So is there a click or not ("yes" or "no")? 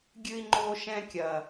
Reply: yes